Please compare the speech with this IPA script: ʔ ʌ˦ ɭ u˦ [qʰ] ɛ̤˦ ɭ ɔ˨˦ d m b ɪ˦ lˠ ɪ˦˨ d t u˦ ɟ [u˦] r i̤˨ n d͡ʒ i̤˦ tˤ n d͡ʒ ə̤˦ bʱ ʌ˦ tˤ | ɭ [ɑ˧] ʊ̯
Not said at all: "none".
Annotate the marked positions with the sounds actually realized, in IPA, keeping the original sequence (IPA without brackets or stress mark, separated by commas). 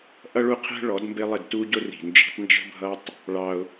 qʰ, ʊ˦, ɑ˦